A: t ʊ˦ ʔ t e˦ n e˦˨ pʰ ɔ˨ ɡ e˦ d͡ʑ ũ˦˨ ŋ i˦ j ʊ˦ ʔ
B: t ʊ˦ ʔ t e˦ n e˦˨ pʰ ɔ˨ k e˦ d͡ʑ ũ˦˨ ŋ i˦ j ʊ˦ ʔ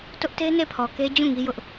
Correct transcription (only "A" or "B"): B